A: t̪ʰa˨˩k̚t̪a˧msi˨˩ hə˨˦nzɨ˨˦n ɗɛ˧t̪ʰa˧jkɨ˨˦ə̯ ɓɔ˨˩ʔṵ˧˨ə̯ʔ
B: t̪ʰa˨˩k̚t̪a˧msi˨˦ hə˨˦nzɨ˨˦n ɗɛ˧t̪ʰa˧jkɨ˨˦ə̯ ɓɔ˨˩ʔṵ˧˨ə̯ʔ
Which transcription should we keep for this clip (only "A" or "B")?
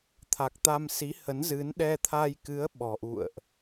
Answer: B